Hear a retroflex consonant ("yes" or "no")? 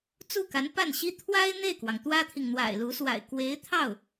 no